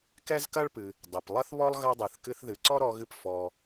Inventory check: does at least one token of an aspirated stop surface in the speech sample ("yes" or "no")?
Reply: no